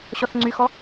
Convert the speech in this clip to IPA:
ɕ ɔ θ ŋ͡ǀ y x ɔ

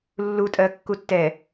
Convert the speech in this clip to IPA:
lː u tʼ ɜ kː u tː ɛ

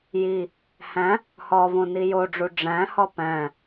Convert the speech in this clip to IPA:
j i | h æ̃ | h ɒ v õ n i j o ɖ͡ʐ u ɖ͡ʐ æ̃ h ɒ p æ̃

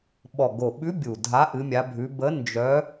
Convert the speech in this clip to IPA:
ɓ ɔ˨˩ ɡ o˨˩ ɓ ʉ˧˥ bʲ u˨˩ dʱ a˧˥ ʔ ɨ˧˥ mʲ a˧˥ bʱ ʉ˧˥ b ə˧˥ n d͡ʒ œ˧˥

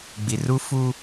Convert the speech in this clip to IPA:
ɡ͡b i˨ r u˦ f u˦

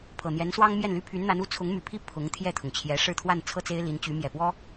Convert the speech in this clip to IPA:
pʰ ɤ˨˩ n̪ j ɛ˧˥ n s w ɑ˥ ŋ m j ɛ˥˩ n l y˥ pʰ y˧˥ n n̪ a˧˥ n u˧˥ t͡sʰ ʊ˧˥ ŋ m y˨˩ pʰ i˥˩ pʰ ʊ˧˥ ŋ t̪ʰ j ɛ˥˩ t̪ʰ ʊ˩ ŋ t͡ɕʰ j ɛ˧˥ ʂ ɻ̩˥˧ t̪ʰ w a˥˧ n t͡sʰ ɤ˥˩ t͡s e˥ ɪ̯ l i˧˥ n t͡ɕ y˧˥ m j ɛ˨˩ p w ɔ˥

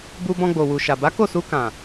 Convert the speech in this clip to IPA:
b u˧ b ɔ̃˧ ɡ͡b o˨ w u˨ ʃ a˨ b a˨˦ k o˦˨ s u˧ k ã˨

